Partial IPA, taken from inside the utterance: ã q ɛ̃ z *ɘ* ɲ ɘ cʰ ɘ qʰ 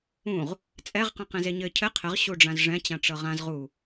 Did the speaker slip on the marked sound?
yes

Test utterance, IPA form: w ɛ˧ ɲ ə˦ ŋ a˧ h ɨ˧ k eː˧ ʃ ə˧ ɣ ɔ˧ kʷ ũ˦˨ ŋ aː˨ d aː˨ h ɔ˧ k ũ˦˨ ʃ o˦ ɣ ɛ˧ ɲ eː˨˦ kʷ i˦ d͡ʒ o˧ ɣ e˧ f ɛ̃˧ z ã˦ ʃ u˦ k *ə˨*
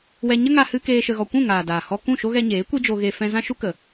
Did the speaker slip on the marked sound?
no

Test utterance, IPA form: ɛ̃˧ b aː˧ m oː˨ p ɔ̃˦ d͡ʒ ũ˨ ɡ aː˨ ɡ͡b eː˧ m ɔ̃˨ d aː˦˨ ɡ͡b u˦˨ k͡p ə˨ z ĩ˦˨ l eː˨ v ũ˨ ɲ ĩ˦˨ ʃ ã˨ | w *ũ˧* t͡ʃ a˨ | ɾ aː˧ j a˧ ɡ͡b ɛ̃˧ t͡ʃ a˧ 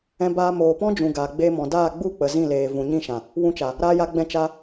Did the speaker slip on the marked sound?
no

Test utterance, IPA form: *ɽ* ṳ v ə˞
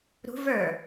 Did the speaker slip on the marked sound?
yes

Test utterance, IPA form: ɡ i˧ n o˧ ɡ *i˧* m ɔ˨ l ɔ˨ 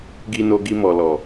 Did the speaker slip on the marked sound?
no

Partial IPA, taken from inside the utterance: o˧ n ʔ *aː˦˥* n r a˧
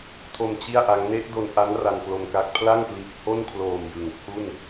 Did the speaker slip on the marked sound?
yes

